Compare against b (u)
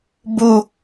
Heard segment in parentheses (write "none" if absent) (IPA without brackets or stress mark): u